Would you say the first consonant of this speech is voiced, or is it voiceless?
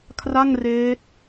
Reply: voiceless